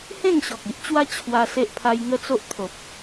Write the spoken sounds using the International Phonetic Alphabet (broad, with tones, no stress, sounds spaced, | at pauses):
h ẽ˥˧ ŋ ɕ ɔ˨ k̚ i˦ ʔ t͡ɕ w a˦ t͡ɕʰ w a˧ s e˦ ʔ pʰ a˦ j ŋ ə˦ t͡s o˦ ʔ t̪ʰ o˨ p̚